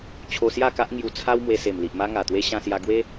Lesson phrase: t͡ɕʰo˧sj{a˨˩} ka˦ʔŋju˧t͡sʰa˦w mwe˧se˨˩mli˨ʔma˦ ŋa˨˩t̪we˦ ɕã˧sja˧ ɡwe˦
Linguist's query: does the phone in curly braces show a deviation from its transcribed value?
yes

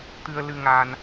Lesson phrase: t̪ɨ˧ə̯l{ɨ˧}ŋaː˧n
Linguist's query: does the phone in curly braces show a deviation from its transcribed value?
no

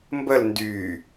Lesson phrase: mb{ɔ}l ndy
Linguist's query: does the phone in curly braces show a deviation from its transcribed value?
yes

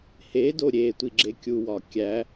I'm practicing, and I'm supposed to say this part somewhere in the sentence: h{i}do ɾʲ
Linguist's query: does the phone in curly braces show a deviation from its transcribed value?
yes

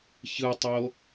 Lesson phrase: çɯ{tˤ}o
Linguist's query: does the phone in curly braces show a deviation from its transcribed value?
no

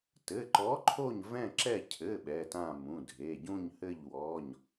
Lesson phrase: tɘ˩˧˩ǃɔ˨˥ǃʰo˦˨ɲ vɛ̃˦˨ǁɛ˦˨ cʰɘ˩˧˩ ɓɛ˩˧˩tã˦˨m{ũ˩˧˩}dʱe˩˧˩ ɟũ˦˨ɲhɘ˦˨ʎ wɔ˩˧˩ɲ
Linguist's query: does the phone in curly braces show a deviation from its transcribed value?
no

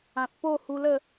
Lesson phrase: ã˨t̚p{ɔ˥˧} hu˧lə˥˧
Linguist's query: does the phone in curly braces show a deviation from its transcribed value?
yes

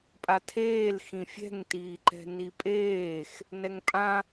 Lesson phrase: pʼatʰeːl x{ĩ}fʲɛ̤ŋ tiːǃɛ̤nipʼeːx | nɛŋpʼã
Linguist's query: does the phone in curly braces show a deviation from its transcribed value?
no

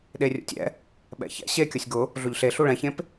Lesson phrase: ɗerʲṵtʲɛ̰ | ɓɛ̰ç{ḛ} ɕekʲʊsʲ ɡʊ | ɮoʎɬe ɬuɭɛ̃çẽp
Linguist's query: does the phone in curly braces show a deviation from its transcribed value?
yes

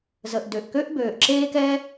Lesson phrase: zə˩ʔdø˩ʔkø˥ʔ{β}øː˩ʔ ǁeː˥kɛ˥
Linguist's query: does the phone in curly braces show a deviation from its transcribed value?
yes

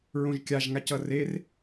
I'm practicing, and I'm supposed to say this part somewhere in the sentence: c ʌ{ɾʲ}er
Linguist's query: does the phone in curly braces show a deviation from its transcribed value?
yes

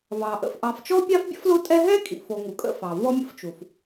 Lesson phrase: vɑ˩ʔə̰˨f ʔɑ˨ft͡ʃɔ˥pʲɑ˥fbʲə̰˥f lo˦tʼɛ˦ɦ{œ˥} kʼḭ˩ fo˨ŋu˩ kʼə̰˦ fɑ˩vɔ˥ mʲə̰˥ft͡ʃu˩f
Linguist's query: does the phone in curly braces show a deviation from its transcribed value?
yes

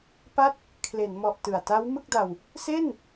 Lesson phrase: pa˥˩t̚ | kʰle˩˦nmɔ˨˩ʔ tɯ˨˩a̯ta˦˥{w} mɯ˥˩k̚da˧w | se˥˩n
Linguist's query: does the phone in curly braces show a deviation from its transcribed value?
no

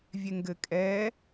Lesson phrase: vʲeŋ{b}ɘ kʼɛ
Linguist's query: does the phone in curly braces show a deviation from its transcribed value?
yes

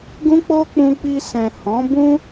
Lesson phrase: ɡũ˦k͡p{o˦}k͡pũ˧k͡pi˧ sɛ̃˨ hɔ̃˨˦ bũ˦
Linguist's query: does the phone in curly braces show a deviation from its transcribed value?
no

